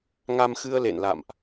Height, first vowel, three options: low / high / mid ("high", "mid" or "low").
low